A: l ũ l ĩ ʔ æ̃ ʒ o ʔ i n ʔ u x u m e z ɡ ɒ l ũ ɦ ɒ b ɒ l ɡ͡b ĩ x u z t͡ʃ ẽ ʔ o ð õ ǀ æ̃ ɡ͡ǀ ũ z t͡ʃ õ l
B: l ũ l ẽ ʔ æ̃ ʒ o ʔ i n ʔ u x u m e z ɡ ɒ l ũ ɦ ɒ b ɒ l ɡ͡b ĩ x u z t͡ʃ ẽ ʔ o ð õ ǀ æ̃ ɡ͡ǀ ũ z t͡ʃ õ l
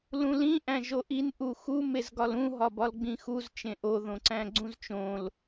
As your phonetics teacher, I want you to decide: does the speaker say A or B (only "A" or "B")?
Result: A